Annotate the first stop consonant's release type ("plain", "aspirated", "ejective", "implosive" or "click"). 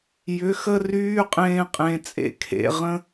ejective